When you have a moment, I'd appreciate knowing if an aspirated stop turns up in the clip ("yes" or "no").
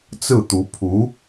yes